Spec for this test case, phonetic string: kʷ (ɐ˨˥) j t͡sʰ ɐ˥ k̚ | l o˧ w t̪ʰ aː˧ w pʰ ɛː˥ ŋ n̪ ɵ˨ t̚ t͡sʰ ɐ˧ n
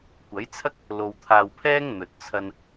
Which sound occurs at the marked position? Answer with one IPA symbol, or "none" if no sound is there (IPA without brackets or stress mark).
ɐ˨˥